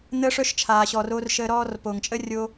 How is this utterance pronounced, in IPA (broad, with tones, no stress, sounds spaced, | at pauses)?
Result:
n̪ əː˦ ʂ œ˦ ʃ t͡ʃʰ aː˨ ɕ ɔ˨ r o˧ r ʃ əː˧ ɾ ɔː˦ r p o˨ ŋ t͡ʃʼ ə˦ rʲ o˧